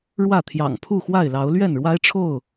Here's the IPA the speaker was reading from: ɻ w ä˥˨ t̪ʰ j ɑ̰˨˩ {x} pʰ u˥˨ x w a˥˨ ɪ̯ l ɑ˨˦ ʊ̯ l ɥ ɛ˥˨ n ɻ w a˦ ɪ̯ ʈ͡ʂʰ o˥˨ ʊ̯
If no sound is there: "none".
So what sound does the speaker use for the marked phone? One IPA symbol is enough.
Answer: ŋ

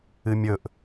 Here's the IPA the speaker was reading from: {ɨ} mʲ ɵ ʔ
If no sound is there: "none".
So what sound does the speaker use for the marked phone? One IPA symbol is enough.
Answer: ɨ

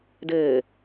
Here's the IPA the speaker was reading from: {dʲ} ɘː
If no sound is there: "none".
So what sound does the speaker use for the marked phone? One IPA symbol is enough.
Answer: d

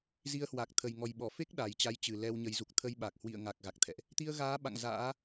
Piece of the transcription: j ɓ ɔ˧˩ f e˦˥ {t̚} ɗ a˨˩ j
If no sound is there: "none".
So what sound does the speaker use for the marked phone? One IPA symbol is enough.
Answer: k̚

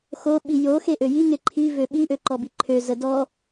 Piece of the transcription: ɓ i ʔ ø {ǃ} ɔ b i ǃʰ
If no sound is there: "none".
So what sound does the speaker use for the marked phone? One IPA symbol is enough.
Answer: ǃ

